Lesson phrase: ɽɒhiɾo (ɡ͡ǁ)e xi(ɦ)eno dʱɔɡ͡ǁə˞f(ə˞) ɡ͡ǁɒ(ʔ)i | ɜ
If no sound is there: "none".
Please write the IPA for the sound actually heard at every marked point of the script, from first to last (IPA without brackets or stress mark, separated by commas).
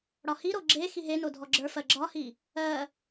ɡ͡ǁ, ɦ, ɜ, h